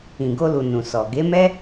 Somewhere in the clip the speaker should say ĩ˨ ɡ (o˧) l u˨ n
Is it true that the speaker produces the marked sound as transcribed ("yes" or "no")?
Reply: yes